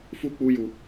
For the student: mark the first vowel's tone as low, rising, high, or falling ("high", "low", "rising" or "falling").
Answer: high